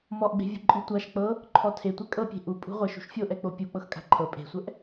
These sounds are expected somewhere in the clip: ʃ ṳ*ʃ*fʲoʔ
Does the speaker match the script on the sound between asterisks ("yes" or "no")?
yes